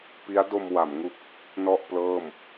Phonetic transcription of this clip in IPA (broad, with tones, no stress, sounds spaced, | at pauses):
p i˦˥ a̯ d o˧ m w a˩˦ m ŋ u˦˥ k̚ | n ɔ˥˩ ʔ p l ɤː˥˩ m